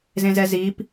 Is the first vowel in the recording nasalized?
yes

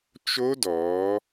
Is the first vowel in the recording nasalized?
no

